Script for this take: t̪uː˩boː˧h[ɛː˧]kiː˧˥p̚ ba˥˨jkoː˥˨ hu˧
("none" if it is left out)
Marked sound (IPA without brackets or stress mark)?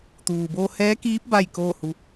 ɛː˧˥